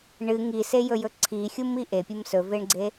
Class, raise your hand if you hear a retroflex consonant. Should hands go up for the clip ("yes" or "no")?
yes